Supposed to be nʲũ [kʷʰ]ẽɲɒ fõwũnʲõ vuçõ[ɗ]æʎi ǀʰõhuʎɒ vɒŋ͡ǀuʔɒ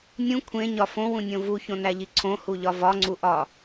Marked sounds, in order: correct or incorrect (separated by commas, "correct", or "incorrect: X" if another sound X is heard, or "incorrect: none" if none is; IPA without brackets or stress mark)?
correct, incorrect: n